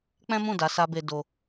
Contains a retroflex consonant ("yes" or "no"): no